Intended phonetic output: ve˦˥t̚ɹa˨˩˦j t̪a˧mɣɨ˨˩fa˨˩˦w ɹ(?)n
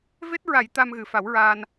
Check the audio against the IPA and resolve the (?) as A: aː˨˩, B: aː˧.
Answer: B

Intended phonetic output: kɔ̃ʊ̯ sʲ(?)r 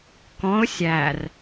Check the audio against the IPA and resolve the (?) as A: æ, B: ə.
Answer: A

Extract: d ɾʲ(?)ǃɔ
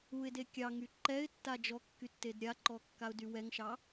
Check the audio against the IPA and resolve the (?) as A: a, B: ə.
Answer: A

